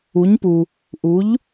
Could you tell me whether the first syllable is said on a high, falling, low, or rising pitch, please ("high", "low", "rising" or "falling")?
rising